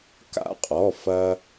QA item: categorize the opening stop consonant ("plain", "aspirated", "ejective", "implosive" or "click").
plain